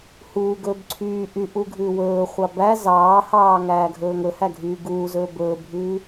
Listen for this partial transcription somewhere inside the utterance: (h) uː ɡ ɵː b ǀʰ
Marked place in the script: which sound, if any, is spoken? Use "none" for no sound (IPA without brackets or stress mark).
h